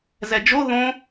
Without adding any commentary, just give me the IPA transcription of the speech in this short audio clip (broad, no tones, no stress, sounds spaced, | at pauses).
z ɛ d͡ʒ o ð õ